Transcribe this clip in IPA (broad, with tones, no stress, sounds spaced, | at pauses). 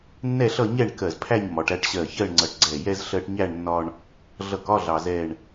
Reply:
nː ɛ˥˧ ɬ ʌ˥˧ ɲ ɛ˥˧ ɳ k ɜ˧˩ z pʰ æ˥˧ ɲ m ɒ˩˧ ʈ æ˧ ʈ ɕ ɜ˧˩ ç ɜ˥˧ ɳ ŋ͡ǀ ʌ˧˩ ʈ ɡ͡ǀ ɛ˧˩ j ɛ˥ z ɬ ɜ˧ ʈ ɲ æ˥˧ ɳ nː ɒ˧ ɳ | ɮ ʌ˧˩ k ɒ˥˧ ɮ ɑ˧ z ɛ˥˧ ɳ